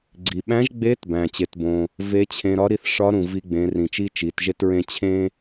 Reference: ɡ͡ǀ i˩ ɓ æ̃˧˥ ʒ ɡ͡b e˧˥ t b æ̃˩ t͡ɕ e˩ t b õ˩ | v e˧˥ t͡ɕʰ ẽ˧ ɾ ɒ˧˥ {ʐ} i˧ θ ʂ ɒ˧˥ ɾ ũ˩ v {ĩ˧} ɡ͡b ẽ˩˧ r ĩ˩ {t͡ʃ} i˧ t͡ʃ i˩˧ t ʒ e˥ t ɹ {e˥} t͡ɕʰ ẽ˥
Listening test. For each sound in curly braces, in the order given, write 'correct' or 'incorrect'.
incorrect, incorrect, correct, incorrect

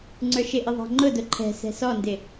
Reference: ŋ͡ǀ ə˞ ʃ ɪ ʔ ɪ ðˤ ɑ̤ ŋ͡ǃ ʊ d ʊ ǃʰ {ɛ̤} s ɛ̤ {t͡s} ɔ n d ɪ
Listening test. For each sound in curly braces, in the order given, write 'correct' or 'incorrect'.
correct, incorrect

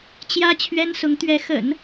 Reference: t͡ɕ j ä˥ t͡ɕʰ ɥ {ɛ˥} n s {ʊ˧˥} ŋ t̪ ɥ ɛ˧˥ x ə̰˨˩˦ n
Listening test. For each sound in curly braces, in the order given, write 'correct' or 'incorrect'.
correct, correct

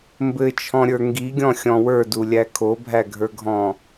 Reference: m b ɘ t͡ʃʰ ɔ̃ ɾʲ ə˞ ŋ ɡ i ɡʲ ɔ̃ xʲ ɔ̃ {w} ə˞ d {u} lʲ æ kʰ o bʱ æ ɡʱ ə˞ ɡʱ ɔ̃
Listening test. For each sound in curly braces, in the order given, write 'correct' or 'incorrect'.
correct, correct

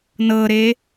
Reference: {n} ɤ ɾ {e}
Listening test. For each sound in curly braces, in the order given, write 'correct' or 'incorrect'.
correct, correct

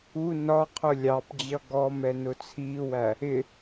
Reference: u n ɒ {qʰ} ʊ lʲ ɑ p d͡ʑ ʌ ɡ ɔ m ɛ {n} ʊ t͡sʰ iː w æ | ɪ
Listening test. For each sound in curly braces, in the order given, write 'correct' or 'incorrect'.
correct, correct

